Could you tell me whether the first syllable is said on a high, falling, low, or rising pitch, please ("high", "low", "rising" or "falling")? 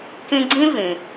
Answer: high